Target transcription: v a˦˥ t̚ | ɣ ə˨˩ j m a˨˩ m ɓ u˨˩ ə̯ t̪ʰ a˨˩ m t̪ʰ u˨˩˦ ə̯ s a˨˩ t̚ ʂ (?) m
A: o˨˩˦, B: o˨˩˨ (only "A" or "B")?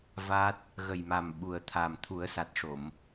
B